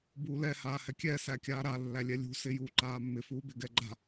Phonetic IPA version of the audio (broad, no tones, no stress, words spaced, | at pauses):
buːlɛ haːhɛkʲɛ sækʲaːɾa lːælʲɛlʲṳ sɪ juːǃaːmːɪ fuːbɪɡɛɡ͡ǃa̤